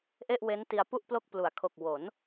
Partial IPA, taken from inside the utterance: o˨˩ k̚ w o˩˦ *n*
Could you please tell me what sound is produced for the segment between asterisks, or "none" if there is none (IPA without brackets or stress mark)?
n